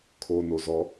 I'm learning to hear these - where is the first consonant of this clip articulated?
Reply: velum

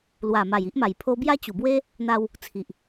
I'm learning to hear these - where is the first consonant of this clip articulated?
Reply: tongue tip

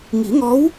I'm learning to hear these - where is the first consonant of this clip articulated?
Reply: velum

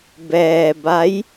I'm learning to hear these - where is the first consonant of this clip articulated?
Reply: lips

